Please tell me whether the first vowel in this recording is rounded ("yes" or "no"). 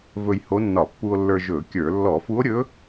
yes